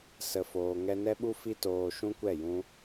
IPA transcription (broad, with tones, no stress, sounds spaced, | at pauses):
s ə˨ f oː˨ ŋ ɛ˧ n ɛ˦ ɓ u˦ f i˦ t oː˧ ʃ ũ˦ kʷ ɛ˦˨ j ũ˧